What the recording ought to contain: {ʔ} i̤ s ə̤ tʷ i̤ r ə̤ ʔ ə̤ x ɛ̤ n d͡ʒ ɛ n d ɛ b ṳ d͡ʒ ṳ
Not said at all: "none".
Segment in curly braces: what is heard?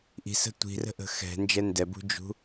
ʔ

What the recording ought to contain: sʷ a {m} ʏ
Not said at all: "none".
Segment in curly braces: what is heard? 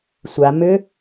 m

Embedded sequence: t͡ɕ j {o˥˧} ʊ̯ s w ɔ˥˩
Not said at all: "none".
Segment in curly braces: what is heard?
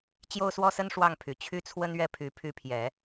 o˥˧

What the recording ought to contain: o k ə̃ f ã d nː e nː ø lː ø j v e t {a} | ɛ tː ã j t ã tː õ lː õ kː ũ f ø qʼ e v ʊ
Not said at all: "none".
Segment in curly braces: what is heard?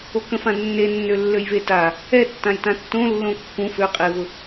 a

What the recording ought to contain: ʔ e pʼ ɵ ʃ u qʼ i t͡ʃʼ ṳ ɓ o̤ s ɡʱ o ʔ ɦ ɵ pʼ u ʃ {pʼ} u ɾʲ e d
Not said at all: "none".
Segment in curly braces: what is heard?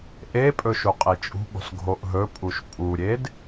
pʼ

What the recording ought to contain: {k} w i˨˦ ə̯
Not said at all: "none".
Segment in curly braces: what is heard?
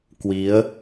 k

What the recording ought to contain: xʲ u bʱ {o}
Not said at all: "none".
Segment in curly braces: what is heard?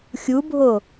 o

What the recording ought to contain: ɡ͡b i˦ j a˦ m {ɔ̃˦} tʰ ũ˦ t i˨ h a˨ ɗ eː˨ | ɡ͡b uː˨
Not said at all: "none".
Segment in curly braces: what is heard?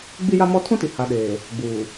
ɔ˦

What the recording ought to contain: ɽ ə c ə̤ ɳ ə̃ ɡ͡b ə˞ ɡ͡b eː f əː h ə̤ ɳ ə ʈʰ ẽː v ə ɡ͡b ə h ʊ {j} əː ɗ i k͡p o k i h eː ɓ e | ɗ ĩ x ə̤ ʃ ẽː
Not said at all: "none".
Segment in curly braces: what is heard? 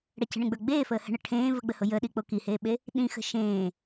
j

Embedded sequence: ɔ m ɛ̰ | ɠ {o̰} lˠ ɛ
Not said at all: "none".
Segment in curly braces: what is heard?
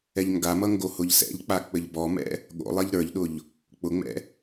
o̰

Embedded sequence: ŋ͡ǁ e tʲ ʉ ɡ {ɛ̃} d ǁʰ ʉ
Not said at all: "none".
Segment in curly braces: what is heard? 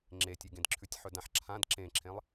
ẽ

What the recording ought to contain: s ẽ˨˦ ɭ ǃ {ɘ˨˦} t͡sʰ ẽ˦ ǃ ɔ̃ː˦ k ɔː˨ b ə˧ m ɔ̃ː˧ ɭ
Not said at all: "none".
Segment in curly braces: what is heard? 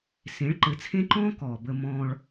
ɘ˨˦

